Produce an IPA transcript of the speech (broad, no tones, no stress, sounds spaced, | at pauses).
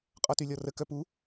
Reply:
qʼ ɔ t y lʲ ɔ r ə k œ p u